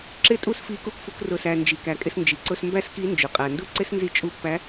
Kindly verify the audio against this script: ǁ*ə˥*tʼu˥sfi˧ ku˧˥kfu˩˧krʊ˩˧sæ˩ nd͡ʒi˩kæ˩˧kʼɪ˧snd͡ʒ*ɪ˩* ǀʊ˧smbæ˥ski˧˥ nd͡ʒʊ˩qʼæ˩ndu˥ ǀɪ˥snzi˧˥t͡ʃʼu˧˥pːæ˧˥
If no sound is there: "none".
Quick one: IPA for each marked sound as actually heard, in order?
ɪ˥, i˩

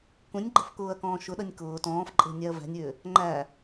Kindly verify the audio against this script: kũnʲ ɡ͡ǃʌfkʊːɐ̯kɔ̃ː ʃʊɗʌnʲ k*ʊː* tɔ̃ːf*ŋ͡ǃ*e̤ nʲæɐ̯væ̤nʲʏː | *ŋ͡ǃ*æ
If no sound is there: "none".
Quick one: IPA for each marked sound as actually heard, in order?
ʊː, ǃʼ, ŋ͡ǃ

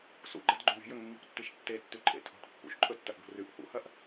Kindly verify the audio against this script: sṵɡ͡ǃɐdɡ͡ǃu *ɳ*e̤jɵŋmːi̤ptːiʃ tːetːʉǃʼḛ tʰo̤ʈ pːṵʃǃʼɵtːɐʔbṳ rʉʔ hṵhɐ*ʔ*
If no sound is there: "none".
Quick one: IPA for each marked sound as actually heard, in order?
ɳ, ʔ

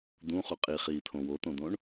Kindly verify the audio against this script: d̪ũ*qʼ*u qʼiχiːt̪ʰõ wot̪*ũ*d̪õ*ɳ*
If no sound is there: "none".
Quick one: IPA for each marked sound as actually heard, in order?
χ, õ, ɳ

